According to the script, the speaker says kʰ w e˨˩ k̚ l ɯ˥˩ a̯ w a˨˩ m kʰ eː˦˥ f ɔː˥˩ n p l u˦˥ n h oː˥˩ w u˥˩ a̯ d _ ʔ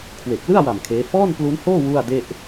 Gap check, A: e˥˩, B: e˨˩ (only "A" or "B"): A